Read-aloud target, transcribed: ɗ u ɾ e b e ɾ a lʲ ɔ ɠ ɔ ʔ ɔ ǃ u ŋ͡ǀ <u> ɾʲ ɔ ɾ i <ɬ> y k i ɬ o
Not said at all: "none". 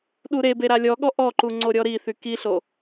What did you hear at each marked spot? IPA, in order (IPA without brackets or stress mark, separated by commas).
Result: o, θ